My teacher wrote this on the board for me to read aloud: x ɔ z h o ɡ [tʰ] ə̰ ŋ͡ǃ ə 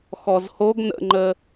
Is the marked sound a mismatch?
yes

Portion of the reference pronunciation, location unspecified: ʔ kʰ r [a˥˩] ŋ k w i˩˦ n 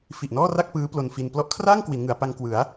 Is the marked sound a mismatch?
yes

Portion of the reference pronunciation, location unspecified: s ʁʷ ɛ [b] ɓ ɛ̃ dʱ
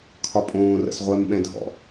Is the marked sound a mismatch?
yes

